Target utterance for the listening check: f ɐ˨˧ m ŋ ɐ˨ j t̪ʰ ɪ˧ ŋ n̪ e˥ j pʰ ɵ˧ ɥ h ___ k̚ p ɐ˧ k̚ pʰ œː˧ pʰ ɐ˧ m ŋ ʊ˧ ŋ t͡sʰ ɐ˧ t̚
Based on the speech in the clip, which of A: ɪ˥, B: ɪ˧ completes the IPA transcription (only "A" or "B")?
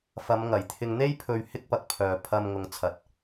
A